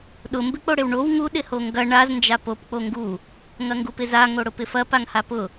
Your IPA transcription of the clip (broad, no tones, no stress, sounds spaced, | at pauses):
ɗ ʊ m b ɪ k͡p o ɽ ɪ w ɳ o w ŋ u ɗ ɪ h o ŋ ɡ ɐ ɳ a z n d͡ʒ a p o p k͡p o ŋ ɡ u | ŋ ɐ ŋ ɡ u p ɪ z a ŋ o ɽ ʊ p ɪ f ɐ p a ŋ h a p ʊ